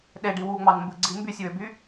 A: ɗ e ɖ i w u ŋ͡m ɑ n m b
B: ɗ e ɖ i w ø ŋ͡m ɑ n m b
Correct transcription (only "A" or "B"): A